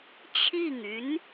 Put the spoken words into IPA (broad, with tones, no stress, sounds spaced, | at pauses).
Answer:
t͡ɕʰ i˥˩ ŋ y˧˥ n